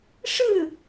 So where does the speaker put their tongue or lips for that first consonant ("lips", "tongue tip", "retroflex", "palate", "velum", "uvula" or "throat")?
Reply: retroflex